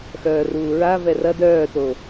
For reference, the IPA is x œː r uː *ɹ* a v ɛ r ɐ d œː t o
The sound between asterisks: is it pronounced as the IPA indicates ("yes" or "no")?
yes